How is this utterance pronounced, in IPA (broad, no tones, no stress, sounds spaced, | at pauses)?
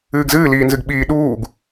ɨː ɡ z ɨː l iː n z ɨ ɡ ɓ iː ɗ uː ɡ